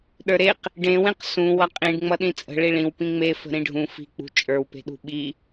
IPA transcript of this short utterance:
ɗə˞ɾeq | ɖẽwẽq sũ wʌqʼĩɖ ŋ͡mʌɗĩt͡sʼə̤ ɭiɭĩw pĩŋ͡mefə̤ ɾĩɖʱũ fi̤k͡pṳ t͡ʃʼə˞wpe̤ɗṳ ɓi

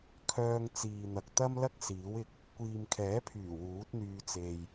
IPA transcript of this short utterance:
kʰœː˧ŋt͡siː˨n̪ɐ˨k̚ t̪ɐ˥mlɐ˥k̚ siː˨˥wɪ˧k̚ | kʷiː˨mkʰɛː˨˥pʰyː˨˩ wuː˨˥t̚n̪yː˧ t͡se˨j

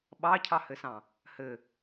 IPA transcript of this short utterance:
ɓɑcʰɑhɘsɑ̃ | hɘ

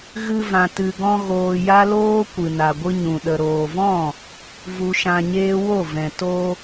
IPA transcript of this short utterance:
ɣɨ˧vã˨ tɨ˨ɡɔ̃˧ ɣoː˧ja˦loː˦ kʷɨ˨na˨ɡʷɨ˧ɲũ˨ ɗə˨ɾoː˨vɔ̃˦˨ | vu˧ʃã˧ɲeː˦ wo˦˨vɛ̃˨ to˧

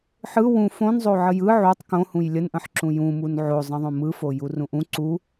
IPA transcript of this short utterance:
ħɯ wũ fõnzˤo ʕəjɯ ʕutˤ kõhũj lʲənʔə̃ħǁũ jũmun ʕozˤə̃ðˤõ mɯfo jurũʔũ ǀu

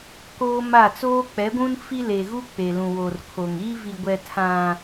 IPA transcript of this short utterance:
koː˦ma˦˨ t͡soː˦k͡pɛ˨˦ɡʷũ˦n fi˦le˨ɣu˦ k͡pe˨lũ˨wo˨r kʰo˨ŋ iː˦vi˨ɡʷɛ˨ tʰã˨

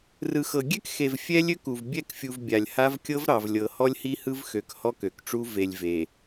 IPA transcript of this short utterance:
rɯ˨xɤ˨ ɡʲɛ˦kxe˨v fʲɛ˦lʲø˦ku˨v bʲɛ˦˨kfʲu˨v bʲa˨lʲha˦v kʲɤ˦v ɾɑ˨vlʲɤ˨hɔ˦lʲ hi˦hɯ˦vxø˨k hɔ˦kø˨kʈ͡ʂu˦ ve˨lʲve˨

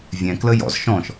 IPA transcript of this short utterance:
vʲɛ̃ kləjɔ̰z ʃɔ̃ʃ

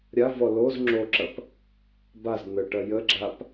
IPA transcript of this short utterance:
ɾʲavɔ loz ŋ͡ǁoǁɐp | baz n̪əʈɐ jəɡ͡ǁap

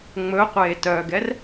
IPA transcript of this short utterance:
ŋ͡mɵ qʷeːtœɡɛr

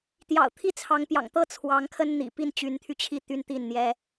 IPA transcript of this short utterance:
t̪jɑ̰˨˩ʊ̯ t̪ʰi˥˩t͡sʰɑ˧˥ŋ pjɑ̰˨˩ŋt̪ɤ˥˩ t͡sʰwɑ˧˥ŋkʰə˥n n̪ḭ˨˩ pi˥˩nt͡ɕy˧˥nt̪ʰy˧t͡ɕʰi˥˩ t̪y˥nt̪i˥˩nn̪jɛ˥

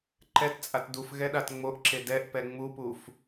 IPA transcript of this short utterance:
ǃɛtt͡sʼat duf ɣɛɗatŋ͡moʔǁe dɛʔpɛ ŋ͡mupuf

